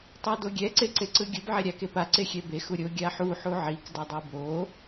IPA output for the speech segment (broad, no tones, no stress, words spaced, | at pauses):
tˤadoɡʲɛ ǀeǀeǀɯɡʲɯb ʕɛɾʲakepa ǀexʲɛbe xuɾʲo ɡʲaħu ħuʕik dʌdˤibo